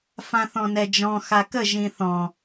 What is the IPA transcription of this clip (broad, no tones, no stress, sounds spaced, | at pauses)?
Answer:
f ã θ ɔ̃ n ɛ d͡ʒ ɔ̃ x a k ə ʒ ĩ θ ɔ̃